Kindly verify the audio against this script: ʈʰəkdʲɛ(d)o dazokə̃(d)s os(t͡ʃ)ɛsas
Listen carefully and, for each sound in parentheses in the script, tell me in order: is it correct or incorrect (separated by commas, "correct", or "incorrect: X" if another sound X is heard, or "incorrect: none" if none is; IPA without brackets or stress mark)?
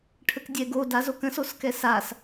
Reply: incorrect: ɡ, incorrect: none, incorrect: k